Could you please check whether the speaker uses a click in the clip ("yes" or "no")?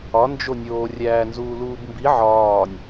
no